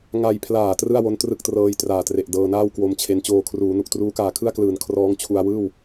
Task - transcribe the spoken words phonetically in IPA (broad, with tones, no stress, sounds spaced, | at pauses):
ŋ a˧ j pʰ l aː˨˩ t r ɯ˥˩ a̯ w o˦˥ n t r ɯ˥˩ k̚ t r ɤː˧ j t r aː˨˩ t r e˨˩ ʔ d ɤː˧ n aː˥˩ w k w o˧ m t͡ɕʰ e˧ n t͡ɕ oː˧ kʰ r uː˩˦ n u˨˩ k̚ t r uː˦˥ k aː˨˩ kʰ ɯ˥˩ a̯ k l ɯː˩˦ n kʰ r ɔː˦˥ ŋ t͡ɕʰ u˧ a̯ w ɯː˥˩ w